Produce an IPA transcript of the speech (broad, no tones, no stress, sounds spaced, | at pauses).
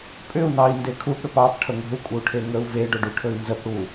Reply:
pʼ ʏ u̯ n ɑ i̯ n d e kʰ u p ɽ ʏ p ɑ p ʈʰ ə ŋʷ e̤ u̯ kʷʼ ə u̯ ʈʰ e ŋ ə u̯ v e ɖ ɵ ɖ ʉ ʈʰ ɵ i̯ n z ə p ɽ u